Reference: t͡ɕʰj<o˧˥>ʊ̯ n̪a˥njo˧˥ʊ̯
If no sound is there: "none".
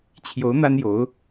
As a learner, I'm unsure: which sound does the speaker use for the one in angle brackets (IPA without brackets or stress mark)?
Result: o˧˥